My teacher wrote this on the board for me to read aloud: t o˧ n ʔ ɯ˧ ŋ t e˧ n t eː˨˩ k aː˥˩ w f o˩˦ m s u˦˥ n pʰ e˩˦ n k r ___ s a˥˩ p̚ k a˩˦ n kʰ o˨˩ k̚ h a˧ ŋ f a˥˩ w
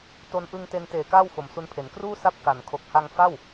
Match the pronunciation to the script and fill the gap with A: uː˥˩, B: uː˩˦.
A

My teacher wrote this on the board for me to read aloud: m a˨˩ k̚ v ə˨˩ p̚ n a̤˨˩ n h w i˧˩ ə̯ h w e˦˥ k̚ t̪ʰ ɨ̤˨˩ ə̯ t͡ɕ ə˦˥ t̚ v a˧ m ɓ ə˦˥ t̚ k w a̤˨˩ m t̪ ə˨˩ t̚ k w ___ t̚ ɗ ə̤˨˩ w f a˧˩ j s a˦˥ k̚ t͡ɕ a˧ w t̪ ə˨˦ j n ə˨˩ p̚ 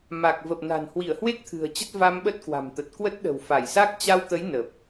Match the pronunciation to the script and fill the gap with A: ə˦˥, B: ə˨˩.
A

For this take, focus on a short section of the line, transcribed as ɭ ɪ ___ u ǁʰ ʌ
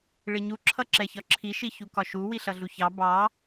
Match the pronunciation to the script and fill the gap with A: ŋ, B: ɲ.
B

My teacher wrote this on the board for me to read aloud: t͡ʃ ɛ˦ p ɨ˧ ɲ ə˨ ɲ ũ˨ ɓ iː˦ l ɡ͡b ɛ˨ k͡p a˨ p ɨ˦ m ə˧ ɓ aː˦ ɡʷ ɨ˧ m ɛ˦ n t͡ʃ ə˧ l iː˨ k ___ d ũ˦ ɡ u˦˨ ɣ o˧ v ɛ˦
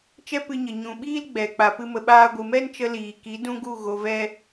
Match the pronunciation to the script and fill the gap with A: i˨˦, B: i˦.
A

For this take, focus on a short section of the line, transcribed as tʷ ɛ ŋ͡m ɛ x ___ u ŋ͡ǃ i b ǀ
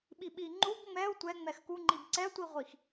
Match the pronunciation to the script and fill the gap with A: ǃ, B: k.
B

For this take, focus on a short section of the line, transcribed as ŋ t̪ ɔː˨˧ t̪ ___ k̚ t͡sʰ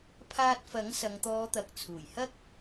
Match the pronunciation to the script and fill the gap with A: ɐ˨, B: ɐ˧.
A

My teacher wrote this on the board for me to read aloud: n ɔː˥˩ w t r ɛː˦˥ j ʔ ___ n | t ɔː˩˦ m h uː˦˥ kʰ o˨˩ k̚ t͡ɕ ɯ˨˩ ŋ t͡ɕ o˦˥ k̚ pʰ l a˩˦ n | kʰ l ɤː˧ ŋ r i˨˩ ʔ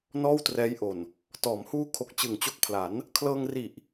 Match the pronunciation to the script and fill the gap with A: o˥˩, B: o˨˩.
B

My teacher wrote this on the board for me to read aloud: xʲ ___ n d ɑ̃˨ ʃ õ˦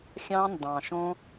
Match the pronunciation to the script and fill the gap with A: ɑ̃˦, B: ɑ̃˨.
A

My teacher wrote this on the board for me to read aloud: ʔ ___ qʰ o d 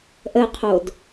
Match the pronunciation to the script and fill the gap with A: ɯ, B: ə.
B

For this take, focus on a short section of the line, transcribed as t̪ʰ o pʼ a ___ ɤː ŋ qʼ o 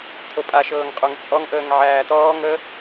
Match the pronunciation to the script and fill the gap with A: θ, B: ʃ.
B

